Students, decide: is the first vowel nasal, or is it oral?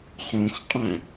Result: nasal